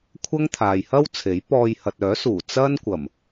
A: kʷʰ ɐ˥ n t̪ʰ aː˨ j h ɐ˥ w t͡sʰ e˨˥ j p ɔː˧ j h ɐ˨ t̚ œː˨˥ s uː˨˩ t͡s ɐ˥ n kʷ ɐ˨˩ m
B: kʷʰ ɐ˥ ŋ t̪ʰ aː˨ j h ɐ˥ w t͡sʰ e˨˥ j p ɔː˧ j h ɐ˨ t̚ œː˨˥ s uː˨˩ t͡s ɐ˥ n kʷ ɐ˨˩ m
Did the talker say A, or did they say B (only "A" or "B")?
B